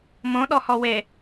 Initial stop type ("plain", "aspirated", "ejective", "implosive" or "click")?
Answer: implosive